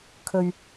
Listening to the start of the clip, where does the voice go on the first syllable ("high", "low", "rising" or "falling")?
low